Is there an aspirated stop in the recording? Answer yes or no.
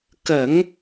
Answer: no